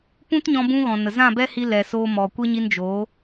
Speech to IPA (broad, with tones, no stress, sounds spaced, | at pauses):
p ũ˦ t ɲ ɔ̃˧ b ũ˧ ɣ ɔ̃˨ n ə˨ z ã˦˨ b ɛ˦ h i˧ l ɛ˨ s oː˧ m ɔ˨ kʷ e˦ ɲ i˧ n d͡ʒ o˨˦